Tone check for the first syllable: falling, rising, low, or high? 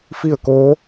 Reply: falling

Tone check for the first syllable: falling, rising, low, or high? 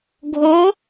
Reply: rising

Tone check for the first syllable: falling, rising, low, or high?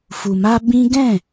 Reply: low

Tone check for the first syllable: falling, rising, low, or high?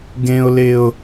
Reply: high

